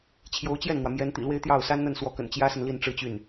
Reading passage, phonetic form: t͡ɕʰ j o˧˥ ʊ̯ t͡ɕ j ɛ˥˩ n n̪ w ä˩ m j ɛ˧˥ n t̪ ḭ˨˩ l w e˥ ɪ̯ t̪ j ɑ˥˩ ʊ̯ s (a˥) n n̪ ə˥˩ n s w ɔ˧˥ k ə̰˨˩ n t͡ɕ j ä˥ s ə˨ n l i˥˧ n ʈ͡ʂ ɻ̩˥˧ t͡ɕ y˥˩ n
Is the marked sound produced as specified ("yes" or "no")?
yes